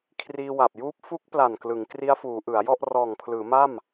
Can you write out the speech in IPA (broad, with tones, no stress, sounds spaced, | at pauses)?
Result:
kʰ r iː˧ w a˨˩ p̚ j uː˦˥ p̚ f u˦˥ k̚ p l a˨˩ n k l ɯ˩˦ ŋ k r i˦˥ a̯ f uː˩˦ ʔ ɯ˩˦ a̯ j ɔ˥˩ ʔ r ɔː˨˩ ŋ pʰ l ɯː˩˦ m a˥˩ m